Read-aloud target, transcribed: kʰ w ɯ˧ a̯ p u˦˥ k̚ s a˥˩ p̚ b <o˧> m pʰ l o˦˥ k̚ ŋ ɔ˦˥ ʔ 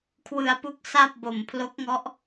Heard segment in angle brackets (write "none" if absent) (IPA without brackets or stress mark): o˨˩